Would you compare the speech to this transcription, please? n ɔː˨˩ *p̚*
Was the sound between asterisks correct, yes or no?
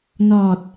no